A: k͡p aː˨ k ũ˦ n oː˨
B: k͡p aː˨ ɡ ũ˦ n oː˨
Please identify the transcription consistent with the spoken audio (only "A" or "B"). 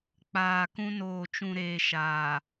A